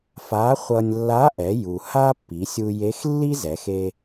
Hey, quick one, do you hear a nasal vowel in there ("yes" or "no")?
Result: no